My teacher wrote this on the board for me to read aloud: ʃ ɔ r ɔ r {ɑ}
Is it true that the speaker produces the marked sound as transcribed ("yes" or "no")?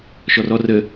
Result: no